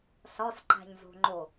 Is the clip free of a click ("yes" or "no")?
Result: no